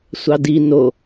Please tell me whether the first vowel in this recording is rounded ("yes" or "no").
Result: no